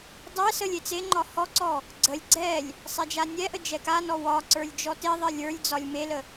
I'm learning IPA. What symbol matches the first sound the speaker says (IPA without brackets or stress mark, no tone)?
dˤ